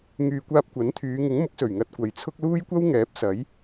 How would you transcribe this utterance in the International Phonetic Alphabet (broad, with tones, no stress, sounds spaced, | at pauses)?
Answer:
ŋ yː˨ kʷ aː˧ p̚ kʷ ɐ˨˥ n t̪ʰ yː˨˧ ŋ ɪ˨˥ ŋ m ʊ˨˥ k̚ s ɵ˨˩ ɥ ŋ ɐ˧ t̚ kʷ ɐ˨ j t͡sʰ ʊ˥ k̚ l uː˥ j kʷ ɐ˥ w ŋ ɛː˨˥ p̚ s ɐ˨˥ j